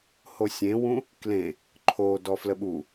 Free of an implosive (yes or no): no